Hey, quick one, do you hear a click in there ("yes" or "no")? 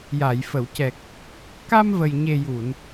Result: no